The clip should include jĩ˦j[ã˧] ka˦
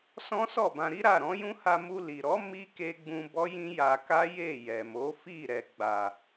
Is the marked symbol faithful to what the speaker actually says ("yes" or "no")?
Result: no